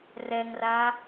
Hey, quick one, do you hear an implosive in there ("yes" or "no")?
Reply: no